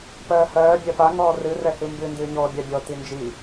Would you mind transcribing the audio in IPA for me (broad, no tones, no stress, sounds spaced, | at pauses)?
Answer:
p ɜː h ɜː bʲ ɜ p a ŋ ɔː r ɨ r ɛ h ɨ m b ɨ n d ɨː ɲ ɔː bʲ a bʲ ɔ t i n d͡ʒ i